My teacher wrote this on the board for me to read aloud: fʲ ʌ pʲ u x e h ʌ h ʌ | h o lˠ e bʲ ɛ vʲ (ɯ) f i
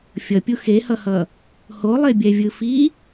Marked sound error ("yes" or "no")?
no